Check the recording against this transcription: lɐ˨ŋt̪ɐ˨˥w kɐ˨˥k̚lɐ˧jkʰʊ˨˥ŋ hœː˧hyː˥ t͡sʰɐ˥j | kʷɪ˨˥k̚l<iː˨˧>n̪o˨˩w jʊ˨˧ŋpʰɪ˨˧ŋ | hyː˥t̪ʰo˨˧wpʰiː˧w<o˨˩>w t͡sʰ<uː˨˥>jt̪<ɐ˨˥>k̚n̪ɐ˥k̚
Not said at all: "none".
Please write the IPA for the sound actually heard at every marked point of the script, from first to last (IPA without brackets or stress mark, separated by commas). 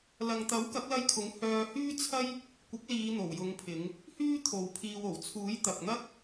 iː˨˧, o˨˩, uː˨˥, ɐ˨